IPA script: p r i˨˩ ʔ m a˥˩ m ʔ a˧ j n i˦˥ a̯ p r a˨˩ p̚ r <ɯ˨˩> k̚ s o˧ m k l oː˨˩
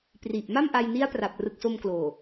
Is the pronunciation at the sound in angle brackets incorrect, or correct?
correct